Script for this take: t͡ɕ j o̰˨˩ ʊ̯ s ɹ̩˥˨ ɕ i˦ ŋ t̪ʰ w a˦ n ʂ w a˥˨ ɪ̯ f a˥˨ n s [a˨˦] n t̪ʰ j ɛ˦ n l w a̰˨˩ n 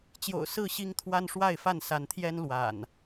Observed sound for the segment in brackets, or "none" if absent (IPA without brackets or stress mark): a˨˦